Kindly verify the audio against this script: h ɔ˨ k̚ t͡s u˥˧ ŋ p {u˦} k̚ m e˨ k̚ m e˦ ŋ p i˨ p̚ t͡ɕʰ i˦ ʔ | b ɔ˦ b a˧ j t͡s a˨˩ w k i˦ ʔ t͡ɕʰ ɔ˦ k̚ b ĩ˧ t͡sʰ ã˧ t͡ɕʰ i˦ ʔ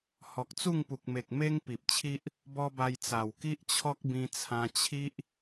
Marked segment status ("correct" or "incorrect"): incorrect